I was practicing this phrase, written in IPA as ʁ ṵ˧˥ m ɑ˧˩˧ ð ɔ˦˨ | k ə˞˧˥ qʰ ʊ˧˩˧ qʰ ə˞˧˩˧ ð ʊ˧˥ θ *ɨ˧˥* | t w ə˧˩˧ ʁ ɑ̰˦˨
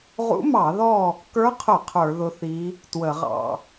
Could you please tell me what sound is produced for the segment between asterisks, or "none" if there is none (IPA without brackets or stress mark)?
i˧˥